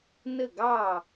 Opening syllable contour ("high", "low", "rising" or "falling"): falling